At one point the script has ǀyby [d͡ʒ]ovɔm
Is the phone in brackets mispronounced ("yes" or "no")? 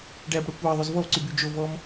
no